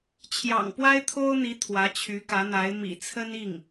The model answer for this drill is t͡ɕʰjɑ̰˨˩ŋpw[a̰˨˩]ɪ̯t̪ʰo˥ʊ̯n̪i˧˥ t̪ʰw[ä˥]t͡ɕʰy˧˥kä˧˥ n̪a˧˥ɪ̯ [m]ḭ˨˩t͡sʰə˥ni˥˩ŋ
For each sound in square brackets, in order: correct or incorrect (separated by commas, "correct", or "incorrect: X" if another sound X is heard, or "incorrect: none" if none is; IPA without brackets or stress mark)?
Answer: incorrect: a˥, incorrect: ä˧˥, correct